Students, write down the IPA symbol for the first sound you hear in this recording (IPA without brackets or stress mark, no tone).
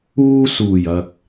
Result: uː